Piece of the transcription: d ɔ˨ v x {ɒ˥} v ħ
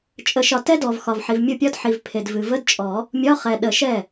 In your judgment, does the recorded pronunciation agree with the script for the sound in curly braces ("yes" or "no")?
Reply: no